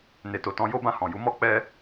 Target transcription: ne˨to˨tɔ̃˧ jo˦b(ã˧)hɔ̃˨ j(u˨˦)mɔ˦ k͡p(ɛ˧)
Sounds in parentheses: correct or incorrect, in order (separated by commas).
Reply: correct, correct, correct